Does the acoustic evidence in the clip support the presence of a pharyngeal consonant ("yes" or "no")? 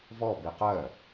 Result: no